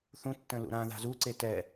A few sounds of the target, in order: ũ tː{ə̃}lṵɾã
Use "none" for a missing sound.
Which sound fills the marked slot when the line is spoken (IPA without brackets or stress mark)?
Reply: ə̃